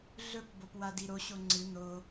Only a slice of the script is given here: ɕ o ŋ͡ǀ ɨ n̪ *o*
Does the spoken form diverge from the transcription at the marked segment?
no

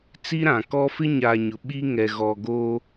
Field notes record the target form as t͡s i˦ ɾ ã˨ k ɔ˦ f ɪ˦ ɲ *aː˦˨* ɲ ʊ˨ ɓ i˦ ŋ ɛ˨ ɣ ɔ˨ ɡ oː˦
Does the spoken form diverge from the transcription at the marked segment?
yes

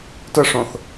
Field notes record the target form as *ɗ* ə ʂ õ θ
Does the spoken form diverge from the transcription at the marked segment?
yes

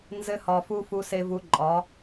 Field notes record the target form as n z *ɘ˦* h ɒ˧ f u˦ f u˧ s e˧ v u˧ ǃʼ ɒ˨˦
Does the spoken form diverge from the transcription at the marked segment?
no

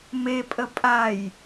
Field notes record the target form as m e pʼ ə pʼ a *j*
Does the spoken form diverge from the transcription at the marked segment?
no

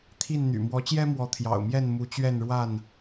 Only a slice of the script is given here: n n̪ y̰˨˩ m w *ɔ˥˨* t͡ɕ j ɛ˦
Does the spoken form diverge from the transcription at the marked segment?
yes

